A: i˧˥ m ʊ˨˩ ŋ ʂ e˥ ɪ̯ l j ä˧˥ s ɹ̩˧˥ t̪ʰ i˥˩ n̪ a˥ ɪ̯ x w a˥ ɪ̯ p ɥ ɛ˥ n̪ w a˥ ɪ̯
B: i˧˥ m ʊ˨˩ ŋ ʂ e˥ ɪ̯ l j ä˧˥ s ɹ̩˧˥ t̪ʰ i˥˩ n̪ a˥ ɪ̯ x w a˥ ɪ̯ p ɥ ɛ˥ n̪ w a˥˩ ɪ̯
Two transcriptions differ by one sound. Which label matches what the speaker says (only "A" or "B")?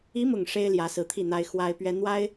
A